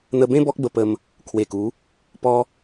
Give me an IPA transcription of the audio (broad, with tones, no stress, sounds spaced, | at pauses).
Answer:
n̪ ə˧ b ẽ˦ b ɔ˦ k̚ b ə˧ p ə˧ m | kʰ w e˨˩ k u˨˦ | p ɔ˦